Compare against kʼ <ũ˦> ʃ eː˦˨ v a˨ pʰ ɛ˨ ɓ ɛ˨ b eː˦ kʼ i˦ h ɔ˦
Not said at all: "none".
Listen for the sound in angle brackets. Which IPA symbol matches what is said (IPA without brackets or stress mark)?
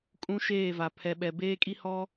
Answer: ũ˦